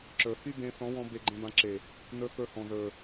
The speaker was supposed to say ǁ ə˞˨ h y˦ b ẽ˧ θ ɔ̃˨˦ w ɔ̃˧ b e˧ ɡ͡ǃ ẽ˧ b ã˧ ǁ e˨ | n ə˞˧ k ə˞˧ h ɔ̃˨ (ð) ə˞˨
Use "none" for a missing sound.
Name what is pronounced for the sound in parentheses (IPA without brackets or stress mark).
ð